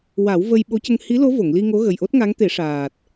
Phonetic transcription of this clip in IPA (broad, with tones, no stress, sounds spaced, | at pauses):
w a˨˩˦ w v ə˧ j ɓ o˧˥ c ə˧ ŋ h i˧˥ l o˧˥ v o˨˩˨ ŋ l i˧ ŋ o˧˥ ɣ ə˨˩ j ʔ o˦˥ t̚ ŋ a˧˥ ŋ t̪ e˨˩˦ ʂ aː˨˩ t̚